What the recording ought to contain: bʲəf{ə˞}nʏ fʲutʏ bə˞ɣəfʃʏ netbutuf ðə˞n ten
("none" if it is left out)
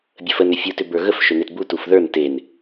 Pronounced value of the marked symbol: ə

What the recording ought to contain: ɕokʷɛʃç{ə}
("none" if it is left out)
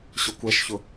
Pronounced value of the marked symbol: ʊ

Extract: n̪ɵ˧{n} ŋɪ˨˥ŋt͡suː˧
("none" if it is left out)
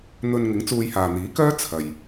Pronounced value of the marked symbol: n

